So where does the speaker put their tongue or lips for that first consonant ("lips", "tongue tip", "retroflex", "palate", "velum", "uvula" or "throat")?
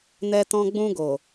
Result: tongue tip